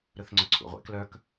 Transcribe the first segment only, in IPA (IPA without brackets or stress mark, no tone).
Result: ɾ